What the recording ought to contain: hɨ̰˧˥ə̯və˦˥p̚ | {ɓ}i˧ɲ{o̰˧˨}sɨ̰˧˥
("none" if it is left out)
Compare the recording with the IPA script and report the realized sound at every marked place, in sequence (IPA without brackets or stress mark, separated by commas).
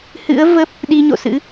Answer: ɗ, o̰˧˨